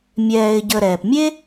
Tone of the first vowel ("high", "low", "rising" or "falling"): low